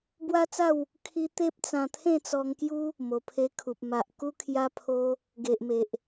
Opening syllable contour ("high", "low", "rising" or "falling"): high